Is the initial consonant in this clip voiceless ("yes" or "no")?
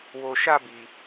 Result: no